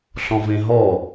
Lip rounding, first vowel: rounded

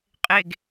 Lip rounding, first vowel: unrounded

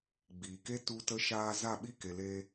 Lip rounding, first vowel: unrounded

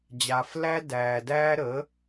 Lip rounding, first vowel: unrounded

